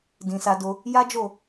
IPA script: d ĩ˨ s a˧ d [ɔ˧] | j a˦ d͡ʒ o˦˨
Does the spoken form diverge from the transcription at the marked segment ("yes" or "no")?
yes